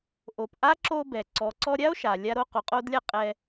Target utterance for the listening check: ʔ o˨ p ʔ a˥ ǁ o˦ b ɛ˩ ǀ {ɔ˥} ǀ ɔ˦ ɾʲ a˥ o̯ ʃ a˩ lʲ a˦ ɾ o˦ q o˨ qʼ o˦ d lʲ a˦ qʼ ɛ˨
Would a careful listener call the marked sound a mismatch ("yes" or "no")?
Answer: yes